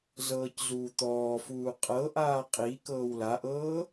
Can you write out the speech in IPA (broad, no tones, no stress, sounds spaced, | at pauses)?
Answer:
z ɤː c z uː t̪ ɔː f uː qʼ ɤ ʔ aː qʼ i k ɤː w l a ʔ ɤː